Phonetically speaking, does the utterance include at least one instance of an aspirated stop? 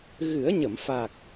no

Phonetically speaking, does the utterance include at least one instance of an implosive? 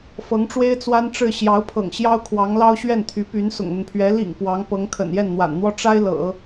no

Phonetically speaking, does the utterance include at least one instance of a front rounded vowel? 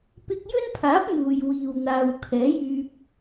yes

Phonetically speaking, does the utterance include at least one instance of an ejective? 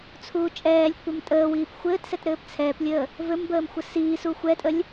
yes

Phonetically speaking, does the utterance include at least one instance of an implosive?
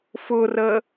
no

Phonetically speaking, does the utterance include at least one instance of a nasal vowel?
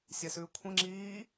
yes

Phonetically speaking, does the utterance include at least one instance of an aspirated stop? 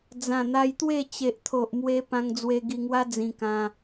yes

